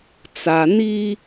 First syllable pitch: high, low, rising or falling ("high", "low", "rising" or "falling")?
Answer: low